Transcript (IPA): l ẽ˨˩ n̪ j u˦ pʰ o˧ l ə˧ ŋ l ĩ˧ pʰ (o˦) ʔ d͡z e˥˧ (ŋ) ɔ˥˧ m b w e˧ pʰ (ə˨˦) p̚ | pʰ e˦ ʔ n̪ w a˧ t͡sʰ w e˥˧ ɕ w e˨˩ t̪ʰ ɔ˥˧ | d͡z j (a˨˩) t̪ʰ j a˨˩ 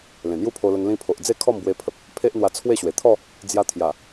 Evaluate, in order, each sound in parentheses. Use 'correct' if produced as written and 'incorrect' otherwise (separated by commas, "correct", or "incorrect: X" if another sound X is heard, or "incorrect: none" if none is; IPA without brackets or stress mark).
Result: incorrect: o˨, incorrect: kʰ, incorrect: ə˨, incorrect: a˧